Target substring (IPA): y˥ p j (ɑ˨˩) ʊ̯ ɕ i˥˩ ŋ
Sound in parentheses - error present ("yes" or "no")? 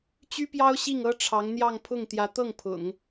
yes